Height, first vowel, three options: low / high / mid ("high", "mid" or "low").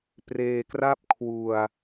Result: mid